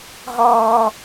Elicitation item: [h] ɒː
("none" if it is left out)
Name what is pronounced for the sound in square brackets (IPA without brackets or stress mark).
ɦ